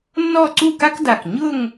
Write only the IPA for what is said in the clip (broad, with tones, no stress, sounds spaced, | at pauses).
nː ɔ˥˧ ǀ u˥˧ k a˥ k d a˧˩ k ɲ ʊ˥˧ ŋ